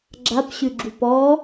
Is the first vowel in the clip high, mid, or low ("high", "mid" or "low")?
low